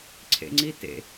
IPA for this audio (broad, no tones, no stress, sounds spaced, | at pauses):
ǀʰ ḛ ŋ͡ǀ i t ḛ